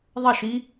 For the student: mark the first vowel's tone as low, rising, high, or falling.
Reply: falling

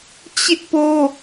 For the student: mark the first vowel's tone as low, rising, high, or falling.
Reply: high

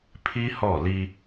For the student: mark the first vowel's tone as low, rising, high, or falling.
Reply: high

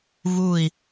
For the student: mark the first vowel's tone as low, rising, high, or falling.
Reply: falling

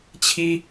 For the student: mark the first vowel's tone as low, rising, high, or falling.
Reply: high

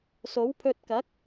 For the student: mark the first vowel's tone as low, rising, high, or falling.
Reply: rising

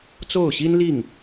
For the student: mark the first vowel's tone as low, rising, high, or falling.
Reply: falling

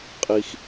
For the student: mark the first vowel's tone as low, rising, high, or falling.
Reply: high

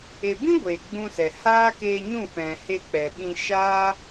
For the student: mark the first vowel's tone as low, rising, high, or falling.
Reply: low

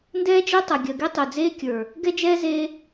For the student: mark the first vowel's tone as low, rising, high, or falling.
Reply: high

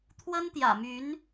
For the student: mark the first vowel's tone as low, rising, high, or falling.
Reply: high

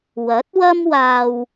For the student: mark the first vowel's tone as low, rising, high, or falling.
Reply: rising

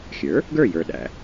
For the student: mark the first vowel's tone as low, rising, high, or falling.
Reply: rising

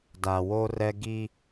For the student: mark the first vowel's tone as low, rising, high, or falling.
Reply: low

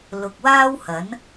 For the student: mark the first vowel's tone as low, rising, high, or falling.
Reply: low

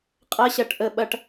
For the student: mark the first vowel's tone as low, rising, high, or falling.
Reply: high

